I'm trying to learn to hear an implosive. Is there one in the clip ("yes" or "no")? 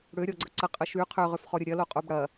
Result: no